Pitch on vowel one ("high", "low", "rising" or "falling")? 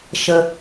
low